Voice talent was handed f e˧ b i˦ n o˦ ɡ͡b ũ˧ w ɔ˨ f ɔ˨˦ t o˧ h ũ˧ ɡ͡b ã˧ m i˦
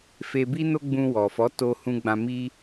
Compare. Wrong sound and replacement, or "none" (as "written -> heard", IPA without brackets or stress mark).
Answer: none